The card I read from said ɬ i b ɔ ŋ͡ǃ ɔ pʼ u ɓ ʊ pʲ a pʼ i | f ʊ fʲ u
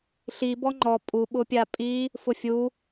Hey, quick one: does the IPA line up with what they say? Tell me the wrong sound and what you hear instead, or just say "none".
none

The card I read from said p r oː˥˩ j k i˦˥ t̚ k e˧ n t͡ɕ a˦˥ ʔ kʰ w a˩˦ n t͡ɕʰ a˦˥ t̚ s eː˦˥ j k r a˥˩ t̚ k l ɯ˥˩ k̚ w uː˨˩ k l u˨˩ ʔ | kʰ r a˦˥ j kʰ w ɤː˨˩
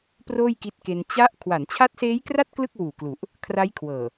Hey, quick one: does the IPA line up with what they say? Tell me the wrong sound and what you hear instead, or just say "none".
none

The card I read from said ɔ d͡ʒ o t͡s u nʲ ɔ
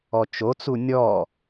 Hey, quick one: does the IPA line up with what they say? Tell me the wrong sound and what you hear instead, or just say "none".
d͡ʒ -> t͡ʃ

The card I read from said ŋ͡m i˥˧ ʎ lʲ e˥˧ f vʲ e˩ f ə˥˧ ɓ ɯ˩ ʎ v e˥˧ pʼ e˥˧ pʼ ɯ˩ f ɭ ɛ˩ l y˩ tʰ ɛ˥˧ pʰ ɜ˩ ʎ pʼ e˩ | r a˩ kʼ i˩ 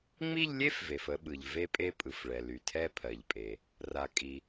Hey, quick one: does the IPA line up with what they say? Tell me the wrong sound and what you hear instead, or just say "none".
vʲ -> v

